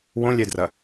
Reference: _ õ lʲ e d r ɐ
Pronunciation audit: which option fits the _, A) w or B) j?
A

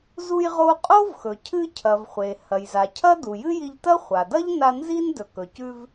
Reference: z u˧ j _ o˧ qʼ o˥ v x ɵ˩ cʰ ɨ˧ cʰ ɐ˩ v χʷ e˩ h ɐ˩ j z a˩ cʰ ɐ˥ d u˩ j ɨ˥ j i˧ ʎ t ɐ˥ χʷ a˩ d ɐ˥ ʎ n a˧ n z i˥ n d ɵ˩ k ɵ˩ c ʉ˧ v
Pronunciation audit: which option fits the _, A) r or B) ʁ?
B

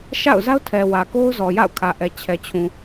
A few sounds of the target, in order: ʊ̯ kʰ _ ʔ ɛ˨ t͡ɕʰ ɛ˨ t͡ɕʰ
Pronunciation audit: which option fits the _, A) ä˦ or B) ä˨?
B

